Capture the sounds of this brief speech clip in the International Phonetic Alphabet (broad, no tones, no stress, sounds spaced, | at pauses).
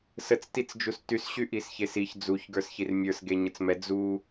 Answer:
s ə t͡s t i t͡s d͡ʒ u s t y s ɕ y ʔ i s ç e s i ç d͡z u ç ɡ ə˞ s ç i r mʲ ə˞ s ɡ e ɲ ə t͡s m ɛ d͡z u